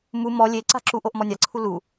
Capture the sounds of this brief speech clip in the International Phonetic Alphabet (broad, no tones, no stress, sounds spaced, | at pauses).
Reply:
m u m ɔ lʲ e ǀ a̤ ǁ u ʔ o ʔ m ɔ nʲ a ǀʰ u l u